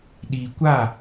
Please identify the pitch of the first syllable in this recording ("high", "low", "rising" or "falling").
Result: low